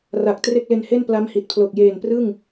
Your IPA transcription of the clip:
ra˨˩k̚ tre˥˩k̚le˧nhe˥˩n pla˦˥mhi˨˩t̚pʰlo˨˩k̚ jeː˨˩nprɯ˥˩ŋ

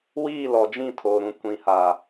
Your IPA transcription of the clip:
wiː˦˨lɔ˨d͡ʒĩ˦˨ tʰoː˨ɾũ˨ kʷĩ˨ha˨

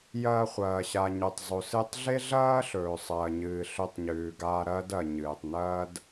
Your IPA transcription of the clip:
jɐː˧χʷɐː˩ ɕa˩ɲɵ˩tˤzˤo˩ sɨ˧tˤɮe˥ɮɐː˥ɬɵː˩ sˤɐː˩ɲɨː˩ ɬɵ˧tˤɲʉː˩ɡaː˧ ɾɐː˥dɐ˩ ɲɨː˩tˤnɐː˥d

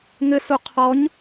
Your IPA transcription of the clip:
ŋɘsu qʰɔɲ

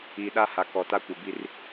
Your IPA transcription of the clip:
i˨ɗa˦ha˨ kɔ˨ta˦ kʷɪ˨bi˦r

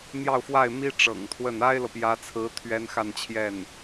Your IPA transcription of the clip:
n̪jɑ˥˧ʊ̯fwa˥˩ɪ̯mi˥ ʈ͡ʂɤ̰˨˩ŋt̪ʰwə˥˩n a˥ɪ̯lɤ˨pjä˧˥t͡sʰɹ̩˧˥ t̪ʰɥɛ˥nxa˥˧nt͡ɕʰjɛ˥˩n

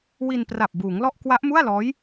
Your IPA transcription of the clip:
wi˧npra˨˩p̚ buː˩˦ŋlɔ˥˩ʔ kwa˦˥ʔmu˥˩a̯lɔː˦˥j

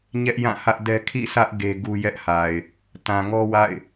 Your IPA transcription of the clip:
ɲɛ˦ʔjã˦˨hä˦ʔdɛ˦ kʰḭ˦˨sä˦ʔ ɡe˦ɡu˦ jɛ˦ʔha˨ɪ̯ | tã˨ŋɔ˦wa̰˦˨ɪ̯

